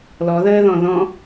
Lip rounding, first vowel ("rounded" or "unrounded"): rounded